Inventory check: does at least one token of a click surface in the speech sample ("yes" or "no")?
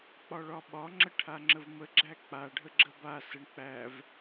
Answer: yes